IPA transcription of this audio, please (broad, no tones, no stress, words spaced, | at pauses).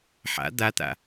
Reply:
ħa̰ d̪at̪a̰